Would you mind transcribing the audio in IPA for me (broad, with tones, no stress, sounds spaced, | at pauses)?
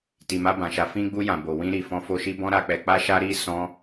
t i˨ m a˧ b ã˨ ʃ a˨˦ f ĩ˧ ɡ͡b u˧ j ã˨ b o˨ w ĩ˧ ɾ i˨ f ɔ̃˧ f o˧ ʃ i˦ b ɔ̃˦ ɾ a˧ k͡p ɛ˧ k͡p a˦ ʃ a˦ ɾ i˦ s ɔ̃˦